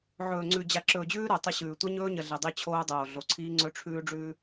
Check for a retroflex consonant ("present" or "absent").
present